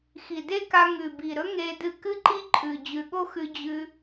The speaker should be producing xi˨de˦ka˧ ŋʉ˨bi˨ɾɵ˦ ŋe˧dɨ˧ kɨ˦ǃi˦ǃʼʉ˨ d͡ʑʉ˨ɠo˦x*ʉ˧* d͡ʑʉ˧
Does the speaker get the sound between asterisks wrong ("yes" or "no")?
no